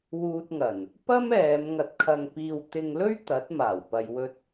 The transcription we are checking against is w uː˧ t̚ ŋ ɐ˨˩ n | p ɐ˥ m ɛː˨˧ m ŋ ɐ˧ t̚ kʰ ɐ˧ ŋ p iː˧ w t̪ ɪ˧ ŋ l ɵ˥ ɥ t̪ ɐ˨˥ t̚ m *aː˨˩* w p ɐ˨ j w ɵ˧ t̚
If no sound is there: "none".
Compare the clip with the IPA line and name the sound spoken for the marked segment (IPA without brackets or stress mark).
aː˨˩